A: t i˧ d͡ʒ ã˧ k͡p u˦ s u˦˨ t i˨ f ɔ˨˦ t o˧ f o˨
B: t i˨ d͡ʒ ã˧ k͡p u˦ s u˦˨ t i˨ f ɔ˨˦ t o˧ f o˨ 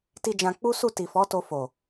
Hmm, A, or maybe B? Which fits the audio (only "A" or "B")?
A